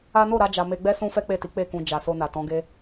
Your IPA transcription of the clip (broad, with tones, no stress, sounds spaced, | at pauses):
a˦ n o˦˨ ɾ a˧ d͡ʒ a˨ m e˧ ɡ͡b ɛ˦ s ũ˦ f ɛ˦ k͡p e˦˨ t i˨˦ k͡p e˦˨ k ũ˧ d͡ʒ a˨ s o˧ n a˨ t ɔ̃˨˦ ɡ e˦